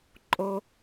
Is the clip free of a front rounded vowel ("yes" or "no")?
yes